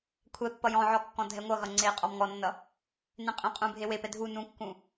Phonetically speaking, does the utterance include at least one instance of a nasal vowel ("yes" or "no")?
yes